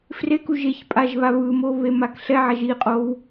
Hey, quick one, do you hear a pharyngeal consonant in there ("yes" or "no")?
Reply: yes